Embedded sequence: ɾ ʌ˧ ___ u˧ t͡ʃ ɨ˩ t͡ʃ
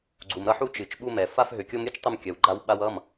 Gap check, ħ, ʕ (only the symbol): ħ